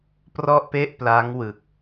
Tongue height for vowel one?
mid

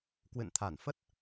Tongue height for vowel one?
high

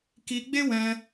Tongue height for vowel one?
high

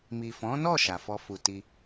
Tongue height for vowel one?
high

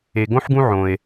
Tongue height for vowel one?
mid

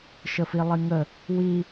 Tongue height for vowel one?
mid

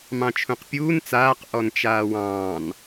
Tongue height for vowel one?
low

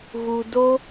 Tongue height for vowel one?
high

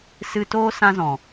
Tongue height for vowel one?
high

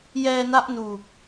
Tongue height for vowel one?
mid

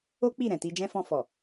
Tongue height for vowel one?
mid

